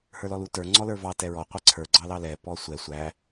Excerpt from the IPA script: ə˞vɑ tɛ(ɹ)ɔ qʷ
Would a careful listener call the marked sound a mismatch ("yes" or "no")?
no